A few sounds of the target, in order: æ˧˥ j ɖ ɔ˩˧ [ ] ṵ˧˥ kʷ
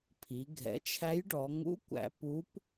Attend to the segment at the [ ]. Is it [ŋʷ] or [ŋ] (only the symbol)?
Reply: ŋ